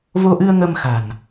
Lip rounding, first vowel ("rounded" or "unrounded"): rounded